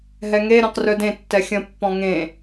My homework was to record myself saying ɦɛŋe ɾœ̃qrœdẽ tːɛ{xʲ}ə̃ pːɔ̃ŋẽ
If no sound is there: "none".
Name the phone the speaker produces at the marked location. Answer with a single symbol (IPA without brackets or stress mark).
xʲ